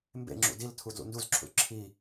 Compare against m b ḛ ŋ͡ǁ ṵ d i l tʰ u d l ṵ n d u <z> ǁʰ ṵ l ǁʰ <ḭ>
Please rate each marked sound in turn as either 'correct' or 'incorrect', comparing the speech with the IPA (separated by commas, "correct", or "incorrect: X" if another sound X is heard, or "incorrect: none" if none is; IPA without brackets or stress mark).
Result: correct, incorrect: i